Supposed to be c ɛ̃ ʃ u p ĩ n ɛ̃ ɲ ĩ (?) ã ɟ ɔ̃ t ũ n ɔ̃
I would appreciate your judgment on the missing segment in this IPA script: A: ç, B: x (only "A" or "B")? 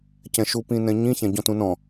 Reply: A